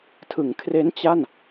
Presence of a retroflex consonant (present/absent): absent